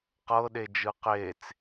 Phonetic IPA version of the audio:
q ɤ ɗ e d͡ʒ ɯ q e t͡s

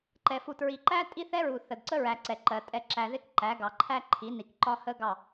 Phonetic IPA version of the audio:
ǃ ɛ˨ f u˨ t ɹ i˨ ǃ æ˦ tʼ i˦ θ ɛ˦ ɹ u˨ θ ə˨ d ǀ ə˦ ɹ æ˨ ǀ ɛ˨ ǃ ɜ˨ tʼ ɛ˨ ǁ æ˨ ð ɪ˦˨ k ǃ æ˨˦ ɡ ɑ˨ ǃʰ æ˦ ǃʰ i˨˦ n i˨ k ǃ ɒ˦ h ə˦ ɡ ɑ˦˨

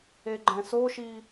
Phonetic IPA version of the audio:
e ɡ͡ǃ ɛ̃ s o ʃ i

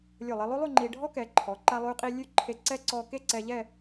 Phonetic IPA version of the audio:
lʲ o˧˩ lˠ e˧ lˠ o˥ lˠ ʉ˥˧ ŋ͡ǃ i˧ ɖʱ ɔ˥ k ɛ˩˧ ǃʰ ɔ˩˧ ǃ a˧ lˠ ʉ˧ qʼ i˧ lʲ ʉ˥˧ ǃʰ e˧ ǀ ɛ˥ ǀ ɔ˧ k e˥˧ ǀ ɛ˧ ʎ ɛ˥˧

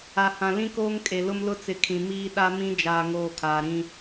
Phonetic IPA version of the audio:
a˨ h ã˨ l ĩ˦ k oː˦ ŋ kʼ e˨ l ʊ˦ m l ʊ˦ t͡s ɪ˨ kʰ ĩ˨ m iː˦ ɗ a˦ m ĩ˦ d͡ʒ aː˨ ŋ oː˨ kʰ aː˨ ɾ ĩ˦

